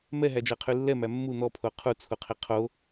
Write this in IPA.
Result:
m ɛ ɦ æ d͡ʒ ɜ qʰ y lː ɛ m æ mː u n̪ ɔ pʰ o qʰ u t͡sʰ u qʰ i qʰ o

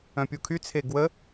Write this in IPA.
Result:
œ̃ pʲ u kʰ y t͡sʰ e ɡ w ə

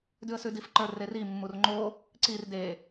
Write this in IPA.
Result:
d ʉ ə̯ s ʉ d i f ǃ ə˞ r e r i mː u r ŋ͡ǃ o | ǀ i r d e

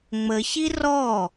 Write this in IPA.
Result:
ŋ͡m ə ç i r ɔ

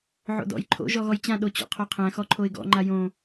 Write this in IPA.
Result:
ʕ o̰ d ɔ̰ j ǃʰ o̰ ʒ ɔ ɣ ɔ j t͡ɕ ã ɗ o t͡ɕ ɔ̰ qʰ o qʰ æ̃ x ɔ ǃʰ o ɪ̯ ɡ ɔ̰ ŋ͡ǃ a j õ

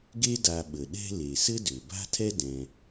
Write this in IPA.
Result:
ɡ e˥ d a˨ ɓ ə˩ ɗ ɛ̤˦ l e˩ s ɘ˥ d ø˩ b a̤˥ tʰ ɛ˥ d ɛ̃˨

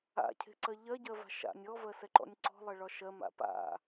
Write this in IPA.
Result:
a̰ cʰ e̤ ǀ ɜ ʎ ɜ ɟ ɜ v a̤ ʃ a̰ nʲ ɔ v ɜ s ɛ ǃ ɔ̰ nʲ ǀ ɔ̤ lˠ ɜ ɭ ɒ ʃ ɜ m a̰ p a̰

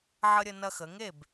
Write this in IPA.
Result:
ʕ ə˦ ɾʲ ə˦ n ɐ˦ x ə˩˧ ŋ e˥˩ b

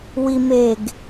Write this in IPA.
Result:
w i m e ɡ

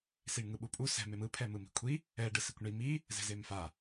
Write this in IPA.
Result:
s i ɳ ŋ ɯ ɓ u pʼ u s ɛ̤ m e m ɯ pʰ ɛ m ɯ m i̤ kʷʰ i | ɛ ɖ ɯ s i kʷ ɳ i m i | z ɛ̤ z e m f a

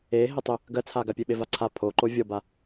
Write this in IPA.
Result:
e ɦ e tˤ ʏ | ɡ ɜ t͡sʰ a ɡ a pʲ e ɓ e v a ǀʰ a pʰ o ǃ o vʲ ɔ b a

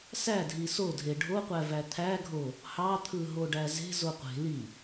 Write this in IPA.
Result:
s æ dʱ i s o dʱ e ɖʱ o qʷ æ v æ t̪ʰ æ ɡʱ o | h ɑ t̪ʰ ɯ ɦ o ɖ æ z e̤ z o qʷ e̤ l i

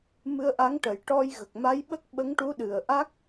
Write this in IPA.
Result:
m ɨ˧ ə̯ ʔ a˧˥ ŋ ʈ ə˨˩˦ j ʈ ɔ˧ j ɣ ə˨˩ k̚ m a˧˥ j ɓ ə˦˥ k̚ ɓ ə˧˥ ŋ ʈ u˧˥ ɗ ɨ˨˩ ə̯ ʔ a˦˥ k̚

